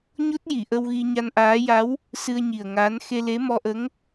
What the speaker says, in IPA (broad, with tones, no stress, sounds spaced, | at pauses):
ɲ o˦˥ t̚ j i˨˩˨ ʔ ə˧ w ɣ i˧ ɲ a˧ n ʔ aː˧˥ j a˧˥ w | s ɨ˧ ə̯ ɲ i˨˩ ə̯ ŋ aː˧˥ n x e˧ l e˧˥ m ɔ˧ ʔ ə˧˥ ŋ